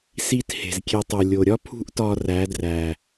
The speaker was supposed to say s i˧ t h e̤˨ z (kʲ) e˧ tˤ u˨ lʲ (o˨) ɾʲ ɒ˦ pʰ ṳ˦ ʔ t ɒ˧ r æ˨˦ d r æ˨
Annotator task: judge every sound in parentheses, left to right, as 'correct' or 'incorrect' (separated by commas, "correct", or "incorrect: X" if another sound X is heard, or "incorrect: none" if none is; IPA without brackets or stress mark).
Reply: correct, correct